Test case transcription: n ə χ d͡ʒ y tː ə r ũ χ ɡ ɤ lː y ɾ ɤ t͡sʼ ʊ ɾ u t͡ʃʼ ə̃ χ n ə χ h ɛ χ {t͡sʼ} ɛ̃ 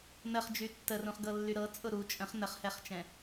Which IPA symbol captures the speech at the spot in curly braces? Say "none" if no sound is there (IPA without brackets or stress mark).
t͡ʃ